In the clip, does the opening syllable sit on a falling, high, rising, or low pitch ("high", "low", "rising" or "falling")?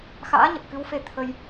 rising